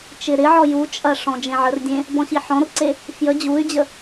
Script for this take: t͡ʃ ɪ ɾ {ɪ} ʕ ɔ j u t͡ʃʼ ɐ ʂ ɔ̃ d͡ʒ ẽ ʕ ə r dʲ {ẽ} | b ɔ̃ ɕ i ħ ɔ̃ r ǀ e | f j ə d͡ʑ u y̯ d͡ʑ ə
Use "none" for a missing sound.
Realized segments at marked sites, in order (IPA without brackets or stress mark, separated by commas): ɪ, ẽ